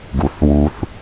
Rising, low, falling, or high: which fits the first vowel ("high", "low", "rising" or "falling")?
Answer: low